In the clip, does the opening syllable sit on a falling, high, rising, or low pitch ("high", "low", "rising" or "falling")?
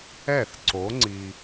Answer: falling